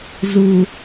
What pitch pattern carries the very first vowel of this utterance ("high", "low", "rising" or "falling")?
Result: low